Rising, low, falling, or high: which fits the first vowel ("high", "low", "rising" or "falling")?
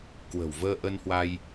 low